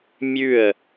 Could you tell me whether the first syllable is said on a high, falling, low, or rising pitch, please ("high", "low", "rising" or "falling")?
falling